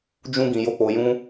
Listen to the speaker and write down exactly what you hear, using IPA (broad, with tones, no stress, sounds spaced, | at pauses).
d͡ʒ ũ˦ ɡ ĩ˧ j o˦ k͡p o˧ j ũ˦